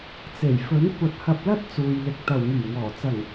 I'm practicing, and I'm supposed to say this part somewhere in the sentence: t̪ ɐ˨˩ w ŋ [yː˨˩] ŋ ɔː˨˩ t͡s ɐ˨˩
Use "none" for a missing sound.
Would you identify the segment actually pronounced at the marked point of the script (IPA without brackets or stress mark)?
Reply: yː˨˩